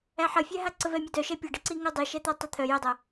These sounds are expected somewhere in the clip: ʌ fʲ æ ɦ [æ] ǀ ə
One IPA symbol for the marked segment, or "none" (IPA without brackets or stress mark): a